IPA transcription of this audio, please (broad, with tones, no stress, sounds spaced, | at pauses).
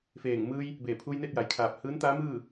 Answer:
f eː˧˩ ŋ m ɯː˧ j | b eː˧˩ pʰ uː˧ j n e˥˨ t̚ j a˩ j kʰ aː˧˩ p̚ h ɯː˧˥ n t̪ aː˧˥ m ɯː˥˨